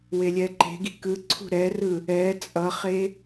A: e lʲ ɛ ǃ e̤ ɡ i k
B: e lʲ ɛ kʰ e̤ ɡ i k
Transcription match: A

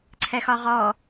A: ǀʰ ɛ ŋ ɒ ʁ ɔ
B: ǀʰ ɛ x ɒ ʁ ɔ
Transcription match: B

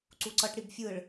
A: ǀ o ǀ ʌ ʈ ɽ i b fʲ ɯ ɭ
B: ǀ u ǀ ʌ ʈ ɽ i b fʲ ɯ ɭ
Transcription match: B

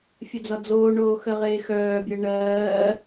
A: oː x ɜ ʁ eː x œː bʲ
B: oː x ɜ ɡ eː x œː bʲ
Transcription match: A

